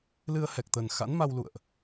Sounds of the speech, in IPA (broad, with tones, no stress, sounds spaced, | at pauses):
l ɨ˧ ə̯ h ɛ˨˩ k̚ t̪ ə˨˩ n x a̰˧˥ n m a˧ w l ṵ˧˨ ə̯ ʔ